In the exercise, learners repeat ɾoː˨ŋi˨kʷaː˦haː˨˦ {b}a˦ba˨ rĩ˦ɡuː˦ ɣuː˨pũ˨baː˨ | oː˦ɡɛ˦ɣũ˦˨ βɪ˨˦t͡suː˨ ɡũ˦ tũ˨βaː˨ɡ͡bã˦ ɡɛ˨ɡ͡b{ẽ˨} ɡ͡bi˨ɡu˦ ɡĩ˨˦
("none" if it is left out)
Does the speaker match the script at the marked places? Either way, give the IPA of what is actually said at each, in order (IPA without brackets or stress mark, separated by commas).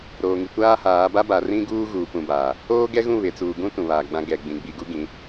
b, ĩ˨